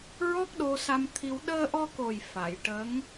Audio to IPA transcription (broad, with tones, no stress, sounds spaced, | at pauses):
ɹ ɔ˦˥ k̚ ɗ o˧ s a˧ m t̪ʰ i˧ w ɗ əː˧ ʔ ɔ˧ k o˨˩ j f a˨˩˨ j ʈ ə˧˥ ŋ